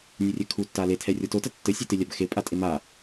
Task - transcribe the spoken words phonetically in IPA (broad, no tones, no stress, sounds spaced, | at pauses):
nʲ u rʲ ɛ kʰ u tː a l e tʰ ɛ rʲ ɔ t o t ɐ tː ɘ sʲ u t e lʲ a b x e pʼ a tʼ e m a